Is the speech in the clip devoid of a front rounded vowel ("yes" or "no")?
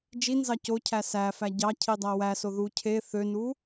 no